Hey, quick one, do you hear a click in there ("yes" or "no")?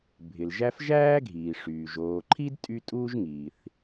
yes